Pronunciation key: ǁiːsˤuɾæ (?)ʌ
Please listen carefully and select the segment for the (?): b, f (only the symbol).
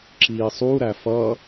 f